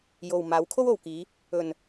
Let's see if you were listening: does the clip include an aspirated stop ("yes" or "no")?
yes